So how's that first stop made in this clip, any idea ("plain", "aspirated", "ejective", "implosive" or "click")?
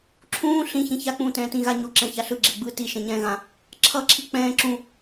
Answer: click